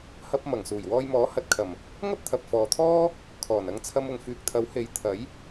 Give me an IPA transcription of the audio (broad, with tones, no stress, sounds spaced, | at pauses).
h ɐ˧ p̚ m ɐ˨˩ ŋ s uː˨˩ j w ɔː˧ j m ɔː˨˥ h ɐ˨˥ t̚ kʰ ɐ˨˩ m | ŋ ɐ˥ p̚ t̪ʰ ɐ˨ p̚ f ɔː˨ t̪ʰ ɔː˥ | kʰ ɔː˨˩ n ɐ˧ ŋ t͡sʰ ɐ˧ m ʊ˨ ŋ f yː˨ k̚ t̪ʰ ɐ˨˥ w h e˨˥ j t̪ʰ ɐ˨˥ j